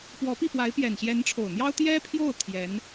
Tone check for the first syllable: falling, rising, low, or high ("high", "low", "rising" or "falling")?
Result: rising